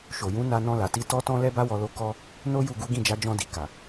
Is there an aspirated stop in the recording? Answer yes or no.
no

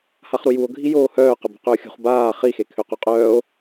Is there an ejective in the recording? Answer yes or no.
yes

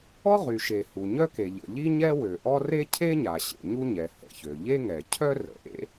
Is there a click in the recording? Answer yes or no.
no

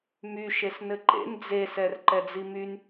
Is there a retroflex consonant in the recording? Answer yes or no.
no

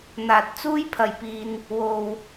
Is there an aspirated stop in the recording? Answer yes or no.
yes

